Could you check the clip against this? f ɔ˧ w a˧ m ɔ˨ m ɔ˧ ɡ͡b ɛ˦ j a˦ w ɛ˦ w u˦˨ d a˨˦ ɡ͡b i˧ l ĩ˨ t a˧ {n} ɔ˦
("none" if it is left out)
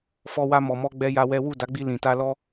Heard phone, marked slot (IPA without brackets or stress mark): l